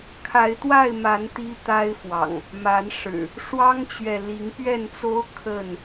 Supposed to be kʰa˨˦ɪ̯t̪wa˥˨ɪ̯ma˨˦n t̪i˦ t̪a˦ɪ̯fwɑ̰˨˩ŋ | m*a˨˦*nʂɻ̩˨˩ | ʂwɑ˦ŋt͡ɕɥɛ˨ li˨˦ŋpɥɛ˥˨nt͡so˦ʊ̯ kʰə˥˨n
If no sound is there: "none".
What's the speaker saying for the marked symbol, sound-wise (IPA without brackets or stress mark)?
a˨˦